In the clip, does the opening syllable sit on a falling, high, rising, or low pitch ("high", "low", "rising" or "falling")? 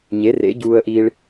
rising